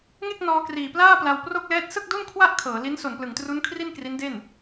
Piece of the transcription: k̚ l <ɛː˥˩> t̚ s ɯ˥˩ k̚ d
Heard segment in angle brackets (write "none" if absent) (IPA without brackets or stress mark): ɛː˦˥